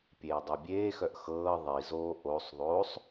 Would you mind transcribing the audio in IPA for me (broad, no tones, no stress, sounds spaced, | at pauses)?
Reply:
pʲ eː dˤ e bʲ eː x œ ʔ x ɤː ðˤ i z oː ʔ o sˤ ðˤ oː sˤ